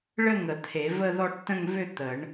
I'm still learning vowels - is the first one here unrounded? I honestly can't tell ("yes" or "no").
yes